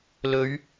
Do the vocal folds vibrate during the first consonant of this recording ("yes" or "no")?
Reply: yes